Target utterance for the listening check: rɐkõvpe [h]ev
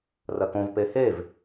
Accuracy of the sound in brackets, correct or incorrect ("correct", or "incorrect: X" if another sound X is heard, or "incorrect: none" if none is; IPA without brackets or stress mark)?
correct